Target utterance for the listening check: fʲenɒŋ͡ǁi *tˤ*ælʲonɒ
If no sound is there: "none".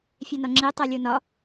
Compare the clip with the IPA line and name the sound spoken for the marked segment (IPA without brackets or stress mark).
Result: tˤ